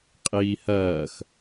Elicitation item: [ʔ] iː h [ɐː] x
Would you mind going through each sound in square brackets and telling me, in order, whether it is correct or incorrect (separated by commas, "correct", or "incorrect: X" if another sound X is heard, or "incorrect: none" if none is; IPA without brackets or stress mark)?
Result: incorrect: qʼ, correct